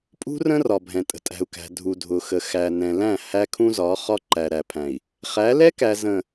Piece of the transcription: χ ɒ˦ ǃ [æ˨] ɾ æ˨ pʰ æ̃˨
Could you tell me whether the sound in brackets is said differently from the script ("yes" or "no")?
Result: no